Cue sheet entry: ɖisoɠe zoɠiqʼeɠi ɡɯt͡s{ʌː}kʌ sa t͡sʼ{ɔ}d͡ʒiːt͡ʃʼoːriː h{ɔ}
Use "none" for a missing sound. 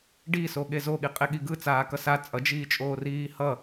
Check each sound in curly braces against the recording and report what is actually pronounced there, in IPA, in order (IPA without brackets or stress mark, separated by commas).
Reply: aː, ʌ, ʌ